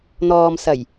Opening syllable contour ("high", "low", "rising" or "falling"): low